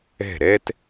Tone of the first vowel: falling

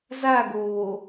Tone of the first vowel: falling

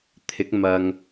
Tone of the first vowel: rising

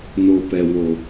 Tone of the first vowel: low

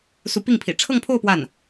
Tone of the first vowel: rising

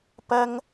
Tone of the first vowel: high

